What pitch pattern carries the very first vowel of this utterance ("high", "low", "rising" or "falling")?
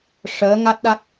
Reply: rising